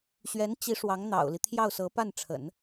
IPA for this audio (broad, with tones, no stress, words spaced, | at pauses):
ɕɥɛ˧˥nt͡ɕi˧˥ ʂwɑ˧˥ŋ n̪ɑ̰˨˩ʊ̯li˦ t̪ʰjɑ˥˩ʊ̯sɤ˧˥pa˥˩nʈ͡ʂʰə̰˨˩˦n